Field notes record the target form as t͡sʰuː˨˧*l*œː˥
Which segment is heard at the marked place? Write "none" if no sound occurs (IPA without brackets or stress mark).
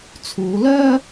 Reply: l